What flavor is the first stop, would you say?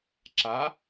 click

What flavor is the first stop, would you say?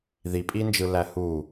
ejective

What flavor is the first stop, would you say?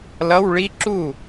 click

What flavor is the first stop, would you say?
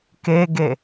plain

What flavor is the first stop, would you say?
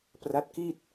plain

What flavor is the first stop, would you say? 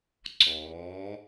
click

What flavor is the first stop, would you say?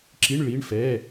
click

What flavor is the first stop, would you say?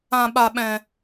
implosive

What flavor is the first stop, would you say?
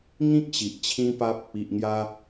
plain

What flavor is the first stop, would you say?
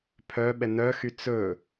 aspirated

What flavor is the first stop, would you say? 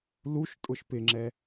ejective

